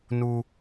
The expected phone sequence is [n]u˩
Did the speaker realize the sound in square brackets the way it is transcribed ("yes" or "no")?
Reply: yes